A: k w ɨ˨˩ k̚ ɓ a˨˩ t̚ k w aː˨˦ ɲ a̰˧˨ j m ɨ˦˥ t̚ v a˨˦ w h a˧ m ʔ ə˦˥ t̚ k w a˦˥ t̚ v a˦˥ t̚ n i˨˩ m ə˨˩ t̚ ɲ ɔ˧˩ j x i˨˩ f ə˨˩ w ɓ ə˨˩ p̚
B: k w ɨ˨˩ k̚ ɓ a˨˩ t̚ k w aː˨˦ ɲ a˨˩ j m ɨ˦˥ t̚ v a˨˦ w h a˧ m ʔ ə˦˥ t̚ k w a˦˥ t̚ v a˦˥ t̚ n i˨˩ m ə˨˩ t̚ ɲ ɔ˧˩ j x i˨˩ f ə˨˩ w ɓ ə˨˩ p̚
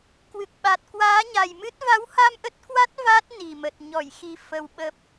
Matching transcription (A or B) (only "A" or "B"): B